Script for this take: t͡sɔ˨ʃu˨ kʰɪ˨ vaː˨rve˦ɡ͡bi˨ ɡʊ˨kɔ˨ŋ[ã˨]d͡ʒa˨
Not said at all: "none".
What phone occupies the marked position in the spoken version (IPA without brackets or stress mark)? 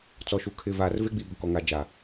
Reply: a˨